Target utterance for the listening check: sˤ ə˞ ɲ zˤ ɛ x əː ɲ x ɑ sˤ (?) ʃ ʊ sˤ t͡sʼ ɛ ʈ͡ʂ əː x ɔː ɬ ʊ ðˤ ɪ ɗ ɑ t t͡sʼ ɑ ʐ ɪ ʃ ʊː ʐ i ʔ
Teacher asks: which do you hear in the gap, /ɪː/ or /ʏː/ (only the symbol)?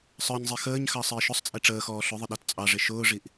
ɪː